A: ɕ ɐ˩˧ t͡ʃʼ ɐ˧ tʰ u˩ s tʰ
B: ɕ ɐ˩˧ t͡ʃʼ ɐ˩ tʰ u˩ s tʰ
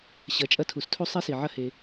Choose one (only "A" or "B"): A